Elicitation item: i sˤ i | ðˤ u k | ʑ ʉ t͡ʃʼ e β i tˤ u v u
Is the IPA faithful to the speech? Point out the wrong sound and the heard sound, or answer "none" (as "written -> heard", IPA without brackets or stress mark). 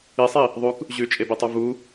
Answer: β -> b